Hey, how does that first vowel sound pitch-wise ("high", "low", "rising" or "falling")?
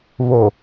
low